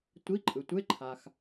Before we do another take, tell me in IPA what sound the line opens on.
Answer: tʷ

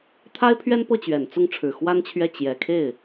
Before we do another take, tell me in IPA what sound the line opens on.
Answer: t̪ʰ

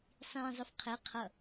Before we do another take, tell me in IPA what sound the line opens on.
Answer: sˤ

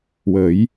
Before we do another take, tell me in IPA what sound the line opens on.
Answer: w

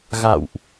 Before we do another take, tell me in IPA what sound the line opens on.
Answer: ɣ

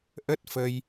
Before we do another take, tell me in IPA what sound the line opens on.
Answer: ʔ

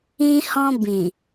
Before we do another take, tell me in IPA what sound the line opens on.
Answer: ĩ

